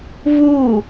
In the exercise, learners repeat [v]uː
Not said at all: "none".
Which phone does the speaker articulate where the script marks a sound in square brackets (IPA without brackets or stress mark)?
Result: v